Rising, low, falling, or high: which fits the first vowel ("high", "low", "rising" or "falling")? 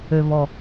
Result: low